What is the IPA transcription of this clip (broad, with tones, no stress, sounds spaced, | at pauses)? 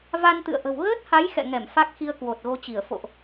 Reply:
v a˧ n t̪ ɨ̰˧˨ ə̯ ʔ ə̤˨˩ w ɣ əː˦˥ t̚ h a˨˦ j x ɛ̰˧˨ ŋ ɛ˧˩ m f a˦˥ k̚ x i˧ ə̯ k w o˨˩ t̚ ɣ o˧ t͡ɕ i˧˩ ə̯ f o̰˧˨ ʔ